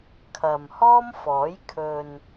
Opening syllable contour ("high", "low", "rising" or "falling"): low